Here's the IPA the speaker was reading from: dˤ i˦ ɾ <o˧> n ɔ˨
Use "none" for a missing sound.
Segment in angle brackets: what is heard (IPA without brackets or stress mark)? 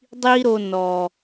o˧